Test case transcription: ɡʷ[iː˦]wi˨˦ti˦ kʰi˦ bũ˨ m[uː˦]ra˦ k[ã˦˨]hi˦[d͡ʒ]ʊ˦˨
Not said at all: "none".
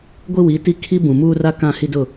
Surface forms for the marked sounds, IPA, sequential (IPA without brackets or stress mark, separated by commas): i˦, uː˦, ã˦˨, d